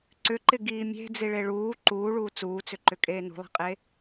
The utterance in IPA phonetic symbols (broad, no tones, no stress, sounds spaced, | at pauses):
ǀ ʏ ǃ ɪ ɡ iː mʲ e̤ d͡z i ɭ e ɭ uː ǃ uː ɭ uː t͡s uː t͡s ʏ ǃ ʏ kʼ eː n ṳ lˠ i̤ qʼ e